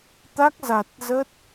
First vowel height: low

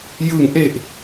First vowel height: high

